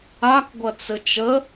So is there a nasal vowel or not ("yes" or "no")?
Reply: no